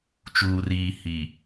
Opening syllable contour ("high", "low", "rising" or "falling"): low